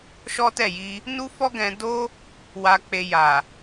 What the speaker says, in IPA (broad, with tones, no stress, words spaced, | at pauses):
ʃɔ˦tɛ˦˨ji˧ | nu˦fɔ˦ɡɛ̃˧ do˦ | wa˧k͡pe˧ ja˨